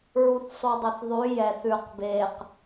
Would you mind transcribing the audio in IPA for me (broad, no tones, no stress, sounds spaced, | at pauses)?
ɹ u θ sˤ u dˤ ʊ θ ðˤ ʉ j ɛ θ ʉ q b e q